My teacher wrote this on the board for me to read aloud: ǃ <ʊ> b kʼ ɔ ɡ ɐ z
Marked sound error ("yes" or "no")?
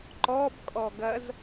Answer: yes